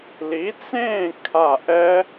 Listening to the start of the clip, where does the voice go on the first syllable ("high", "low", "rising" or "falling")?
rising